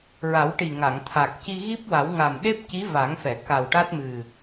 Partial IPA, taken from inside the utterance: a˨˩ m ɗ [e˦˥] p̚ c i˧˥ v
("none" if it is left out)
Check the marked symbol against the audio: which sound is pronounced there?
e˦˥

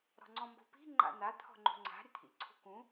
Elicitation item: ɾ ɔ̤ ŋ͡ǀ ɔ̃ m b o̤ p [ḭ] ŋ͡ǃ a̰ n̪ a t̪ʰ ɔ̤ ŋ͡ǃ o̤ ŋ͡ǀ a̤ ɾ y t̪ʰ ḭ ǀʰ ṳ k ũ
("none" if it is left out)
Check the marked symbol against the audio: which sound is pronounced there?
i̤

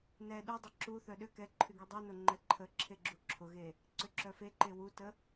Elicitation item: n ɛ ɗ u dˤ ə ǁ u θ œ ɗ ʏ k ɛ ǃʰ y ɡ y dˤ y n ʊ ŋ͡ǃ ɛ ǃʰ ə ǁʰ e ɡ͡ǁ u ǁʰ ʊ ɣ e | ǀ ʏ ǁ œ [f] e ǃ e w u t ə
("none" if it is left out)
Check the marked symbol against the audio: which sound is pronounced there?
f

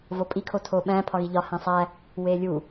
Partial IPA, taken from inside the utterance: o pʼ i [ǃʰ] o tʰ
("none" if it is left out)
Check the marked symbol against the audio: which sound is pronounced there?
kʰ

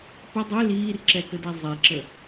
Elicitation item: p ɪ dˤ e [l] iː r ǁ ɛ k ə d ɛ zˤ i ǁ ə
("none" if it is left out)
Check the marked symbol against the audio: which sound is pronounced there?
l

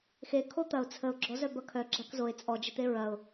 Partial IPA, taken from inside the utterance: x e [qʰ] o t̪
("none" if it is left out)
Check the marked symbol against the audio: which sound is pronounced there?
kʰ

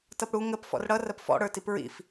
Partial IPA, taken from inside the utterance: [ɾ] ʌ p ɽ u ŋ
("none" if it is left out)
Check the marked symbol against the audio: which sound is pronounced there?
t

